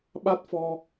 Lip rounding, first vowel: unrounded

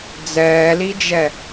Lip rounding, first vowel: unrounded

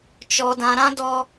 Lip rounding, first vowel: rounded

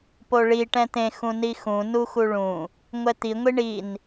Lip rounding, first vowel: rounded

